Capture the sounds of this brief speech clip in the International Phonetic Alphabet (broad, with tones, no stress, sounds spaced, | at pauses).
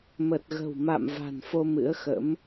m ə˨˩ t̚ ɣ ə̤˨˩ w m a̰˧˨ m v a̤˨˩ n f o˧ m ɨ̰˧˥ ə̯ x ə̰˧˥ m